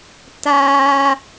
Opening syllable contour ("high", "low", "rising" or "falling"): high